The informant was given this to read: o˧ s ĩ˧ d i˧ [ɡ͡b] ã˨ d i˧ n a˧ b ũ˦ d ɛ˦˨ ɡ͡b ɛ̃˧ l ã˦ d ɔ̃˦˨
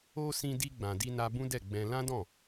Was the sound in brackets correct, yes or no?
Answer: yes